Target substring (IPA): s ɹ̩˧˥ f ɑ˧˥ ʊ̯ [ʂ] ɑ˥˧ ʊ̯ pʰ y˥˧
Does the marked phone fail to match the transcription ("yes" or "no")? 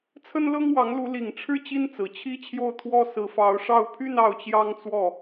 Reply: no